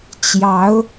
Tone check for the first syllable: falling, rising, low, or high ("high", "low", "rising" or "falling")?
rising